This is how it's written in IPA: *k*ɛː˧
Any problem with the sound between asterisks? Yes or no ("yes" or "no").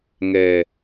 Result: yes